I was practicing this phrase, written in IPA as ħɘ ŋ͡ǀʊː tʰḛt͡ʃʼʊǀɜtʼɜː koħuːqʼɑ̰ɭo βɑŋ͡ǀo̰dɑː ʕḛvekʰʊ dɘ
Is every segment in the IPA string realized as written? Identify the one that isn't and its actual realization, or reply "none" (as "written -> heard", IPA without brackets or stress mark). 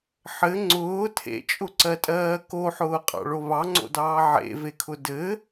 uː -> ʊː